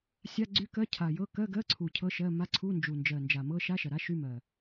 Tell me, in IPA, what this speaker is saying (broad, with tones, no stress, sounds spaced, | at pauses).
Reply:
sʲ a˧˥˧ ɡ͡ǀ y˧˥˧ k ɜ˧˥˧ cʰ a˨˩ j ɤ˧˥˧ k ɜ˧˥˧ ɡ ɜ˧˥˧ ǀʰ u˨˩ cʰ ɤ˧˥˧ ʃ ɜ˧˥˧ m a˧˥˧ ǀʰ u˧˥˧ n d͡ʒ u˨˩ n d͡ʒ ɜ˨˩ n d͡ʒ a˨˩ m ɤ˧˥˧ ʃ a˧˥˧ ʃ ɐ˨˩ ɾ a˧˥˧ ʃ y˧˥˧ m ɜ˨˩